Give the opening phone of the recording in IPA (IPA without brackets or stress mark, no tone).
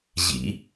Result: ʑ